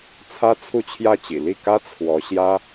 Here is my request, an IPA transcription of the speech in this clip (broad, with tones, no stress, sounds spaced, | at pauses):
t͡sʰ ä˥ t͡sʰ u˥˧ t͡ɕʰ j ä˥˩ t͡ɕ ḭ˨˩ l i˥˩ k ä˥ t͡sʰ w ɔ˧˥ ɕ j ä˥